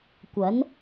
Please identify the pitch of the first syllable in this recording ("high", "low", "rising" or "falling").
rising